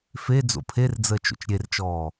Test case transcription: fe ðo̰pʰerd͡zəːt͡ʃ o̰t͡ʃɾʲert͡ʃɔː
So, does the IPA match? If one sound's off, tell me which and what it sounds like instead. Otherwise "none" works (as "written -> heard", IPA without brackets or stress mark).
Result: ð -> d͡z